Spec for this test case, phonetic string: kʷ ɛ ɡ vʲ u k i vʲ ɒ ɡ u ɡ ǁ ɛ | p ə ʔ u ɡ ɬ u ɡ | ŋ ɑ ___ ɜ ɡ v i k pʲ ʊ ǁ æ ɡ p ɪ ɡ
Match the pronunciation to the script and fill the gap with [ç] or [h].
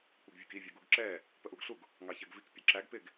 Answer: ç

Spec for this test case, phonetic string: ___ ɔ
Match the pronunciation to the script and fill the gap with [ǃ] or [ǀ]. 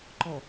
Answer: ǃ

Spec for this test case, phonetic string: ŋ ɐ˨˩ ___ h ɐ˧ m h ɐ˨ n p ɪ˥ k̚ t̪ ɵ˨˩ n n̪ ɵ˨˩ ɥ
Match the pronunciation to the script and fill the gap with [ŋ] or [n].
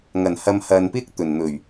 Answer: n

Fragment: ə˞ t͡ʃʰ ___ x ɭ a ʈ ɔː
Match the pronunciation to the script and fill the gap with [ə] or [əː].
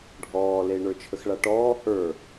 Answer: ə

